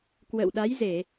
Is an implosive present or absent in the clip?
present